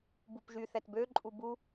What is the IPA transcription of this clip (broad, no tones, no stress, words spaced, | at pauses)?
bupʒy θɛtbø ǃʼubu